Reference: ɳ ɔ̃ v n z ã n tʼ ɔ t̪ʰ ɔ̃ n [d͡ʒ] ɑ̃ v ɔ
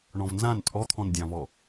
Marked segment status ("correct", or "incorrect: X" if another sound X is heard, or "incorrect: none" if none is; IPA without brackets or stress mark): incorrect: dʲ